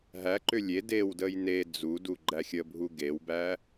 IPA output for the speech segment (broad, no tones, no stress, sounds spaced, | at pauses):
ɦ æ ǃ ʏ lʲ e d e w d ə j n e d͡z u d u ɡ͡ǃ æ xʲ ə bʱ u ɡ e w b æ